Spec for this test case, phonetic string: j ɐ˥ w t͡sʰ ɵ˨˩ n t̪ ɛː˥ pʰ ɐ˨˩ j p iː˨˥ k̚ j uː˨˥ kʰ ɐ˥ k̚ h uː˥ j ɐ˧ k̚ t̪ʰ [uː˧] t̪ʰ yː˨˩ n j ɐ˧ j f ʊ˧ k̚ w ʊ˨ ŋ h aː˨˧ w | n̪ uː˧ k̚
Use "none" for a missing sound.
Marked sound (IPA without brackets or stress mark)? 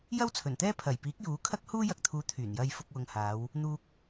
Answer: uː˨˧